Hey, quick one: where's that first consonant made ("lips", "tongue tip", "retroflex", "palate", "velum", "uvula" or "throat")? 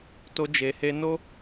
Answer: tongue tip